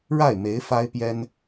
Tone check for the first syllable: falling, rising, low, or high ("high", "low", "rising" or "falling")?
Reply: falling